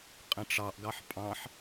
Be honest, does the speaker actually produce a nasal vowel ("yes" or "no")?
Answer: yes